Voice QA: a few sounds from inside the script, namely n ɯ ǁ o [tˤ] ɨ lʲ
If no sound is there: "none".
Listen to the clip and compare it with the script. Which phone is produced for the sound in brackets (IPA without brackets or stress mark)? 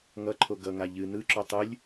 tˤ